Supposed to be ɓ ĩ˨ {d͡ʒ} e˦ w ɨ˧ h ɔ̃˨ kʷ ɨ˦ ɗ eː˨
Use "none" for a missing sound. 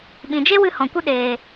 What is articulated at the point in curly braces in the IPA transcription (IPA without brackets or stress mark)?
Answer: d͡ʒ